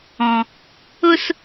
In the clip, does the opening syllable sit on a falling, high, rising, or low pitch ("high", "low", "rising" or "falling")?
low